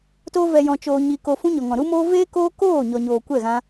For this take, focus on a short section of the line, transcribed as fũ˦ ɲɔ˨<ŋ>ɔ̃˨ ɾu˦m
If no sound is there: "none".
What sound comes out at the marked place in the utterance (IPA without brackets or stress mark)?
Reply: ŋ